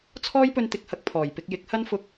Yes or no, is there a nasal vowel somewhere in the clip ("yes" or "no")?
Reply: no